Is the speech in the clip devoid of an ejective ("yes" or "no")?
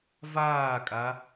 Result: no